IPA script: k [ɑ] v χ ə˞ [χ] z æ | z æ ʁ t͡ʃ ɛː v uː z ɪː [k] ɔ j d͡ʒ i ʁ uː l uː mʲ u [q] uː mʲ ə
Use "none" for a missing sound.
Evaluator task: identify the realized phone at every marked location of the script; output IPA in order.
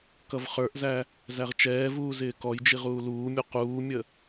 ʌ, ʔ, k, q

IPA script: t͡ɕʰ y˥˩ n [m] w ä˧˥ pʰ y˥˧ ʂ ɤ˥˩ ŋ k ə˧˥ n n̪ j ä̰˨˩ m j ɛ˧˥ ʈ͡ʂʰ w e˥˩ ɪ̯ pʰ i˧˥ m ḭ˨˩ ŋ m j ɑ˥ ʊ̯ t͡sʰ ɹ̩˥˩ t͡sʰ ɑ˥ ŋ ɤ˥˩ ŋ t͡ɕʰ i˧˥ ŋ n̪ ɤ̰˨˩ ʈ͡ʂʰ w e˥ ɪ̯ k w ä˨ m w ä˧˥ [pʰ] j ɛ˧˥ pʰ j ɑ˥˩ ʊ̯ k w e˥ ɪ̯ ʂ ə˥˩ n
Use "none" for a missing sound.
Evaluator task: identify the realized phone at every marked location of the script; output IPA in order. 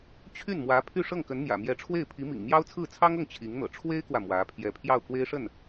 m, pʰ

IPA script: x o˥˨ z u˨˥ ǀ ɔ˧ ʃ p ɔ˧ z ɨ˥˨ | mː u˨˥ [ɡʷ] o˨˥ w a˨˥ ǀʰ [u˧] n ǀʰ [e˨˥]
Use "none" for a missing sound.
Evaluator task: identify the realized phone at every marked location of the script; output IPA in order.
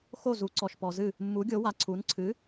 ɡʲ, u˨˥, ɨ˨˥

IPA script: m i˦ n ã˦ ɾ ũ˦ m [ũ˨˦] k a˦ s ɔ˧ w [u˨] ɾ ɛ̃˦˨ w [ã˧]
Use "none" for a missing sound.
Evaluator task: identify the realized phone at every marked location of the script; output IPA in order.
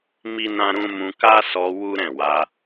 ũ˧, u˦, a˧

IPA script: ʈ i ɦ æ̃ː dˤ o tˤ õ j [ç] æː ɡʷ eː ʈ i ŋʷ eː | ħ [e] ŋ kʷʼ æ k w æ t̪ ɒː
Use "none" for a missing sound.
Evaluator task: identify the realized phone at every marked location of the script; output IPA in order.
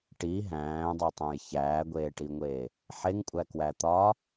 ç, e

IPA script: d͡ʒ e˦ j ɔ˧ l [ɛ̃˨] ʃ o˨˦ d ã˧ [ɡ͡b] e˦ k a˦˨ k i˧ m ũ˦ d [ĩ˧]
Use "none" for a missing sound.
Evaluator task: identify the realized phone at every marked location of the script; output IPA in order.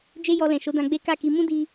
ɛ̃˨, ɡ͡b, i˧

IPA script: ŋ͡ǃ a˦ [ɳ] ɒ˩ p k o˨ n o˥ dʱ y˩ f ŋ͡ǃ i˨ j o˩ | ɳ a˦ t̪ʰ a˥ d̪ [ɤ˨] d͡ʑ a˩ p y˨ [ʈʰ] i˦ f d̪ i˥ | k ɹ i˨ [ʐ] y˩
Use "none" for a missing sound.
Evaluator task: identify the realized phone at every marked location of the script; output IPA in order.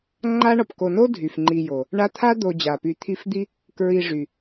ɳ, o˨, t̪ʰ, ʐ

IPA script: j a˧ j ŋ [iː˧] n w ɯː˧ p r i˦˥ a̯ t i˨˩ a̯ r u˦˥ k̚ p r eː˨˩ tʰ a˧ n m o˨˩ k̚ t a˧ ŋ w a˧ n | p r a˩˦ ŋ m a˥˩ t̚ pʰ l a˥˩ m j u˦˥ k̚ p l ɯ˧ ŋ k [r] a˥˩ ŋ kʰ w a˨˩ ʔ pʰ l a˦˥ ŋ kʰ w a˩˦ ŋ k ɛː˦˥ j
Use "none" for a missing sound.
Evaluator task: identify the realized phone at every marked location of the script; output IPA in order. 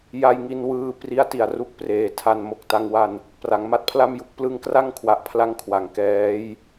i˧, r

